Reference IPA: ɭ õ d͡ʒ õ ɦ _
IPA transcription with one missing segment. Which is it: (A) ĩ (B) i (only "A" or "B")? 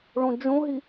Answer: B